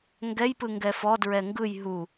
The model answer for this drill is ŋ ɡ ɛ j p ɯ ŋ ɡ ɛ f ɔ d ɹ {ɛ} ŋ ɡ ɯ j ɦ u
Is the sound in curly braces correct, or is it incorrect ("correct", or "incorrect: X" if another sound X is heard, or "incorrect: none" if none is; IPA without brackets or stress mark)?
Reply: correct